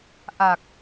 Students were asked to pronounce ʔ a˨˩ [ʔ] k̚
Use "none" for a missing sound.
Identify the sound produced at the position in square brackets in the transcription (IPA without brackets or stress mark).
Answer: none